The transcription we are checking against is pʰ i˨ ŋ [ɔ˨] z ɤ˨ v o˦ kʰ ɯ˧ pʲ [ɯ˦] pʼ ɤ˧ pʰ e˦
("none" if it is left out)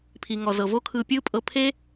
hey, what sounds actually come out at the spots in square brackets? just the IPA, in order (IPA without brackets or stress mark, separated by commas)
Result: ɔ˨, ɯ˦